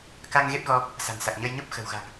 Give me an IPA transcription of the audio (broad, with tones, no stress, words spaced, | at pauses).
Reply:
ka˧ŋ ɣe˦˥p̚ɣɔ˧ | sa̤˨˩nsa˨˩k̚ɲə˧jɲo˦˥p̚ xə̤˨˩wɣa̤˨˩ŋ